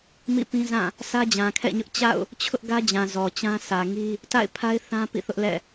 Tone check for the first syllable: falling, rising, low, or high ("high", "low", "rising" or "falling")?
falling